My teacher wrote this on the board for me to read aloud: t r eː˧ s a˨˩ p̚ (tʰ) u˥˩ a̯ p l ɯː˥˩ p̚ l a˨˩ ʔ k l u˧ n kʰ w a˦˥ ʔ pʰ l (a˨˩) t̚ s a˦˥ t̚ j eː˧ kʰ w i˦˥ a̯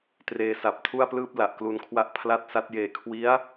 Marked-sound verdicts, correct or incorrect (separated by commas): correct, incorrect